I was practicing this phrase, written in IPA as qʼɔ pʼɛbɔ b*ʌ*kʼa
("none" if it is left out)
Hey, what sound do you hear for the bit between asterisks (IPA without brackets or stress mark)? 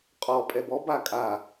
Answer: a